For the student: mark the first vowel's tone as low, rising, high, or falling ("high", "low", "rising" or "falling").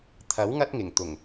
rising